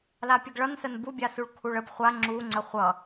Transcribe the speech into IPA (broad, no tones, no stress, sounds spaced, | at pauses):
l a pʲ ə ɡ ɭ ʌ n s ə n b u bʲ a s u ɭ kʰ u ɭ ə b χʷ a ŋ͡ǁ u ŋ͡ǀ ə χʷ ʌ